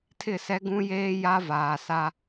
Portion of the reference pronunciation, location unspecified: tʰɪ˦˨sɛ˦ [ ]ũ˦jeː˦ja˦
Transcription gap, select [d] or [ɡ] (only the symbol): ɡ